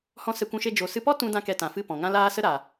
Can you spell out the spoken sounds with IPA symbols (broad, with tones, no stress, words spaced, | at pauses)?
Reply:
hɔ̃˦ sɛ˧kʷũ˧ʃe˧ d͡ʒo˨sɨ˧pɔ˦ tũ˦ dã˦kɛ˧tã˨fɨ˦˨ pɔ̃˨ŋã˦laː˦ sə˦ɾa˨